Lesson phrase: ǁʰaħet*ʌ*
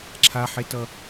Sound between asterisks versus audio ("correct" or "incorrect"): correct